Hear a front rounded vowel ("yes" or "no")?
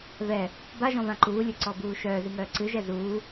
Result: yes